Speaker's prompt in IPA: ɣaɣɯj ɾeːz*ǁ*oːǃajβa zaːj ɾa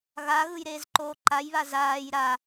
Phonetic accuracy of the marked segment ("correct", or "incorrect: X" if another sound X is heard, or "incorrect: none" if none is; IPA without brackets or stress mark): incorrect: ǃ